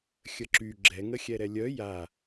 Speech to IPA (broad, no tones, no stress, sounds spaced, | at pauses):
xʲ ə ǁ y ɡ͡ǁ ɛ ŋ ə xʲ ɛ ɾ ɛ lʲ œ j a